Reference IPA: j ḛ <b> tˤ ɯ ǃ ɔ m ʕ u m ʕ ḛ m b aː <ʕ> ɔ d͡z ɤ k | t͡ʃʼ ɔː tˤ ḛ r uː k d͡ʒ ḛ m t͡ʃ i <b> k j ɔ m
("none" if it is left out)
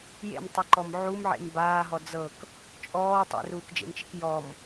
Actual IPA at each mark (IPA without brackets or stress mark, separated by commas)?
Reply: m, ɦ, none